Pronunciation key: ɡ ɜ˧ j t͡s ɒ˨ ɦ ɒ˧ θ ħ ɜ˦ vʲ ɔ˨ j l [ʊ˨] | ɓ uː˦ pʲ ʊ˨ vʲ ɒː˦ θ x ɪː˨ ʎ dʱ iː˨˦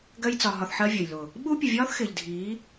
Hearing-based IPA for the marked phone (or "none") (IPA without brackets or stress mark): ʊ˨